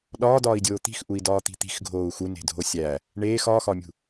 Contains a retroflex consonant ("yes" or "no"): yes